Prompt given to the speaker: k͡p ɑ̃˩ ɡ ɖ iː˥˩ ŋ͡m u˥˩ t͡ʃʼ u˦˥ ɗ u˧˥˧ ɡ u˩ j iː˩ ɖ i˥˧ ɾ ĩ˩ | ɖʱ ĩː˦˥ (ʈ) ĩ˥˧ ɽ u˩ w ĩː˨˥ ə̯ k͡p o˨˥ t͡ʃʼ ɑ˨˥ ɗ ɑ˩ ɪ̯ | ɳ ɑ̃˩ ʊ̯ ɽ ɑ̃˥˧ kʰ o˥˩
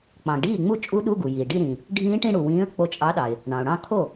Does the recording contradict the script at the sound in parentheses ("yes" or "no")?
no